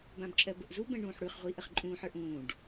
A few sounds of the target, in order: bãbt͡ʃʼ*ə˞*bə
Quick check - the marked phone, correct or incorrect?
incorrect